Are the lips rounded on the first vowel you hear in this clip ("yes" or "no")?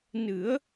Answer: no